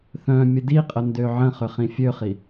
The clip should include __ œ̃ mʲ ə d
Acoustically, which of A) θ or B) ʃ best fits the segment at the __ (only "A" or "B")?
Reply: A